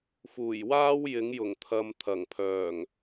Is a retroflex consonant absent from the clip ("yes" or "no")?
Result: yes